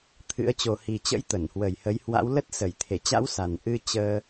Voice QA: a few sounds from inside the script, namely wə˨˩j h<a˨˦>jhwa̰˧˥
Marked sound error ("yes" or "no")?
yes